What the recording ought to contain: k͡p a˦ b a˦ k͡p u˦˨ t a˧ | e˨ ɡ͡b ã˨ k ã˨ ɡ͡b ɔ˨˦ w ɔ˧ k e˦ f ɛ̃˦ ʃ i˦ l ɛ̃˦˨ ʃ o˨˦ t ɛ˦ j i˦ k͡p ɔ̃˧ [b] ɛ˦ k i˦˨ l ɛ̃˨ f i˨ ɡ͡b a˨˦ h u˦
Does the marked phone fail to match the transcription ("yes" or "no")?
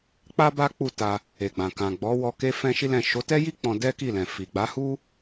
yes